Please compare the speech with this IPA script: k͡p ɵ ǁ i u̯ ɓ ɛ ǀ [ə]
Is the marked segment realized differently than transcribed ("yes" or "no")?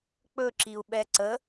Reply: no